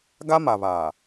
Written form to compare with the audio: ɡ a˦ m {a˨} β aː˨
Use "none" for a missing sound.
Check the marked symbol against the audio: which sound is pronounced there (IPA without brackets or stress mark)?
a˨